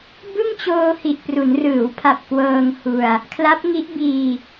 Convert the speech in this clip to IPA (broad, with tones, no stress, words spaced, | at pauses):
bɯ˥˩ŋt͡ɕoː˧ hi˨˩ʔpru˩˦nrɯː˩˦wpʰa˨˩p̚ kwɤː˧ŋhu˧a̯ | kʰla˦˥p̚ŋi˦˥ʔ biː˧